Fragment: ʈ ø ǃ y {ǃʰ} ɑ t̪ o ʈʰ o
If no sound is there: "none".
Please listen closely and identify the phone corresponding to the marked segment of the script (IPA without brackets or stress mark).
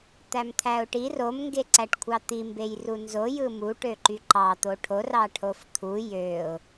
ǃ